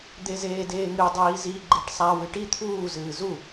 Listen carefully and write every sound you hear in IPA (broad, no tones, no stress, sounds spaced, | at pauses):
d̪ e z eː d eː ŋ ɨ dˤ iː z i ɡ͡ǃ e ʈ sˤ a w ɨ ʈ i t̪ʰ uː z ɨː z u